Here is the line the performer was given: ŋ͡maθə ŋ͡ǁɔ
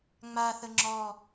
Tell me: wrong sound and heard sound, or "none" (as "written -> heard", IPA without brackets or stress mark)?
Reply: none